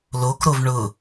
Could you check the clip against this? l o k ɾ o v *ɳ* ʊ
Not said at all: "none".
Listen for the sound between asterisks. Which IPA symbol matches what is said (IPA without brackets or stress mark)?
ɳ